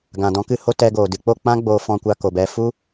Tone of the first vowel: low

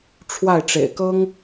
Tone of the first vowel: falling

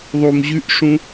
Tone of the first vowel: low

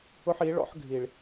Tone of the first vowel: high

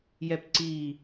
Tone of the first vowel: high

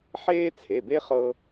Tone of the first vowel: high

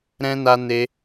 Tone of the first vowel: high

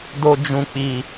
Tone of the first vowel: low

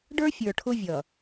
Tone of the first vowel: high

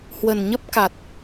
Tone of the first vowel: low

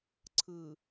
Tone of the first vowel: low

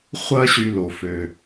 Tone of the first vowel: high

